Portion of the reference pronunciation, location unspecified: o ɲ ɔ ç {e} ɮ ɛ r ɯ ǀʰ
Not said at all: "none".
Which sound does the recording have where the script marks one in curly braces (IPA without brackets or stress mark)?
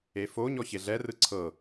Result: e